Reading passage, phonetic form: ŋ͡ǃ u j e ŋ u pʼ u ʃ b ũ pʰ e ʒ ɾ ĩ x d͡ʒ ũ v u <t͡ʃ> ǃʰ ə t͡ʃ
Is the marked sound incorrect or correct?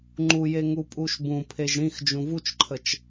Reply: correct